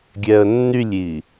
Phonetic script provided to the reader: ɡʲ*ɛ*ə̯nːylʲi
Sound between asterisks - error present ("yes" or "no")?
no